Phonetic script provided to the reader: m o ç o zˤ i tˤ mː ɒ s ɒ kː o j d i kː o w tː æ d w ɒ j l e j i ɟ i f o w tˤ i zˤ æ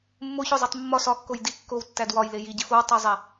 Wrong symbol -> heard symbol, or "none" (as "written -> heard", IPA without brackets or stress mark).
m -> mː